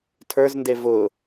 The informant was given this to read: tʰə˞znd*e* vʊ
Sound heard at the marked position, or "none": e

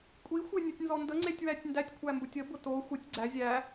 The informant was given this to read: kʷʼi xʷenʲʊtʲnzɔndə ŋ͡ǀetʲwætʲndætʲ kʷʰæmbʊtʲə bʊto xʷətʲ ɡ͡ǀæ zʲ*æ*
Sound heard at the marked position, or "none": æ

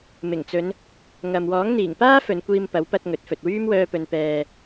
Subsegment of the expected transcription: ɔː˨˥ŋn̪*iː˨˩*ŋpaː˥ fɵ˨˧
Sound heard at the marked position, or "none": iː˨˩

